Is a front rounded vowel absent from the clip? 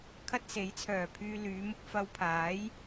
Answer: no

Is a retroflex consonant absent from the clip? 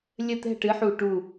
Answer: no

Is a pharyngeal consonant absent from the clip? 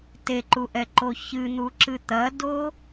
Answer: yes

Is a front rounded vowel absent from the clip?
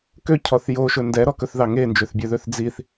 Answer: no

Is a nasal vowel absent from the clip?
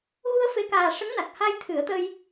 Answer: yes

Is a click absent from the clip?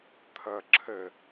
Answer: no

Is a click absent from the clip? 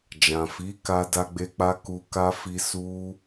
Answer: yes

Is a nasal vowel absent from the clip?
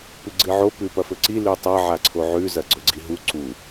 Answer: yes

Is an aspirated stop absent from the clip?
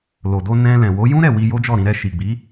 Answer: yes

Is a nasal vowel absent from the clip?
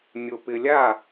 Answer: yes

